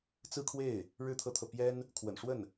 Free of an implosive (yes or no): yes